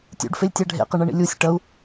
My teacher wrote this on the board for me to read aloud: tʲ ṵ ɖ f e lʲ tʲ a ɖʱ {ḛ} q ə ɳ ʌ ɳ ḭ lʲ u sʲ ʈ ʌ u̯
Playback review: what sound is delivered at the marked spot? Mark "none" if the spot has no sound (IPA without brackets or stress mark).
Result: ḛ